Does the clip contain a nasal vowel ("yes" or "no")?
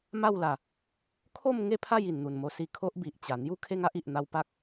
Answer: no